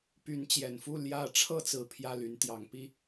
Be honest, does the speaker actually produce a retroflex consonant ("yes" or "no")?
yes